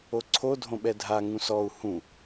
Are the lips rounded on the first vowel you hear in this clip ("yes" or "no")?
yes